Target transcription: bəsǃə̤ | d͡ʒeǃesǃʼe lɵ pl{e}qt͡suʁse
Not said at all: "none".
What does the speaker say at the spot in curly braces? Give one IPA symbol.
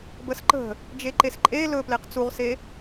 e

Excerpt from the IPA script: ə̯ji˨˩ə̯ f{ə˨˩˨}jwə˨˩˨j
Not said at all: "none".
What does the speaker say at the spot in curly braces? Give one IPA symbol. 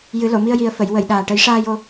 ə˨˩˨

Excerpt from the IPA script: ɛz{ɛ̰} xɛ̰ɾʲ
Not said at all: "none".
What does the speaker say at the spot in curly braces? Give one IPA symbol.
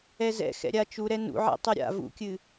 ɛ̰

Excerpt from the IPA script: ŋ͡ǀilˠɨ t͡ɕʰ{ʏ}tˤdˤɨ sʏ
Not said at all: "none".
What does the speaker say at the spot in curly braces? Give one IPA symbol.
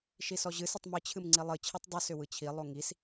ɨ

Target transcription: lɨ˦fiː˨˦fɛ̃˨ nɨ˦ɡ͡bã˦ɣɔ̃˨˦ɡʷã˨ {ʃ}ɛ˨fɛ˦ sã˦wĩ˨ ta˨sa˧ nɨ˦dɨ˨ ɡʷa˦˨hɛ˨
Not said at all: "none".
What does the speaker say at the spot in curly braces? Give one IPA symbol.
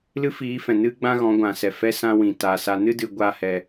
s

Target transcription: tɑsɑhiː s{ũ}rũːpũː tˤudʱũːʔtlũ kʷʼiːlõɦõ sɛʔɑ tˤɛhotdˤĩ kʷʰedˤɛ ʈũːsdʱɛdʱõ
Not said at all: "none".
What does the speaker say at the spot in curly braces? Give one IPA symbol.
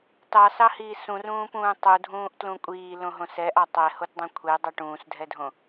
ũ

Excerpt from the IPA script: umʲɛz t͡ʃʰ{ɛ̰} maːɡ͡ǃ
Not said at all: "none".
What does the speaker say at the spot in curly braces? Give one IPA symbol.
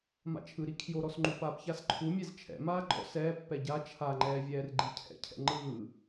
ɛ̰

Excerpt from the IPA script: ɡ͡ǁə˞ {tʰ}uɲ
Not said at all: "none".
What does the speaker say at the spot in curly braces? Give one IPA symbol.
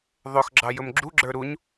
ɾ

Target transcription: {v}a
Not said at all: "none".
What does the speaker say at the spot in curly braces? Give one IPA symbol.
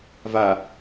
v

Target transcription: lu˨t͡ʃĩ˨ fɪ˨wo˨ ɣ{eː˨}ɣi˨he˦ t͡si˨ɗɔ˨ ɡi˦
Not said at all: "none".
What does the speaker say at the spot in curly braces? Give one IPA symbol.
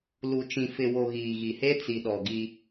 iː˨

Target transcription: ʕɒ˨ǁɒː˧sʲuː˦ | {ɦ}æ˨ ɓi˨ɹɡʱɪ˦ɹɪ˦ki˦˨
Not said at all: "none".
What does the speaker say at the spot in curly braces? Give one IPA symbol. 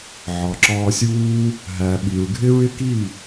ɦ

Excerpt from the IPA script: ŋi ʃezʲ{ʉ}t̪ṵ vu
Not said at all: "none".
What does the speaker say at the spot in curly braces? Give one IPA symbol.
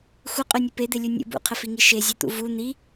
ʉ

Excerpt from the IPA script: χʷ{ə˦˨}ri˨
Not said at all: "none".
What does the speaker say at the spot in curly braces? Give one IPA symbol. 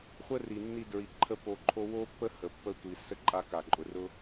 ə˦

